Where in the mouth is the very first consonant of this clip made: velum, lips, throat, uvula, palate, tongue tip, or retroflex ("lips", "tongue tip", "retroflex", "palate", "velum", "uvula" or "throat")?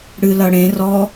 retroflex